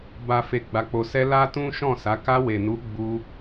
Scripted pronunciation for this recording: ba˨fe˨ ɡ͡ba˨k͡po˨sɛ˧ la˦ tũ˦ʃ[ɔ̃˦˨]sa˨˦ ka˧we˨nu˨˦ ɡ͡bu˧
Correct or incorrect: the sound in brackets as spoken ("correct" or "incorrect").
correct